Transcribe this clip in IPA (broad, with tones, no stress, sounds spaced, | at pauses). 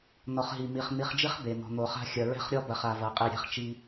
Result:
n ɔ˨ χ ɦ i˨ m i˨ χ n̪ i˨ χ d͡ʒ i˦ χ b e˨ n̪ ɔ̤˨ n̪ o˨ χ a̤˦ xʲ ɐ˨ ɹ ɛ̤˦ χ ɾʲ ɔ˦ b ɐ˨ χ a˨ v ɐ˨ qʼ i˨ ɾʲ ɛ̤˦ χ t͡ʃ i˦